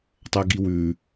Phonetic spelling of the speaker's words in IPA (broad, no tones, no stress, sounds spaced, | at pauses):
tˤ ɐ ɡ i w ʉ